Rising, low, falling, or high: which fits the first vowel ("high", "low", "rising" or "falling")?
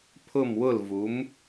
falling